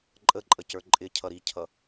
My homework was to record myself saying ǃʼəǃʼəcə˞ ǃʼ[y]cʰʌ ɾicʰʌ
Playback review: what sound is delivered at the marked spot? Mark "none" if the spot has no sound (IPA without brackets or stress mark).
ɪ